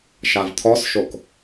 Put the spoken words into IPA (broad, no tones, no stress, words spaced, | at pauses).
ʃavt̪ʰɔsʃok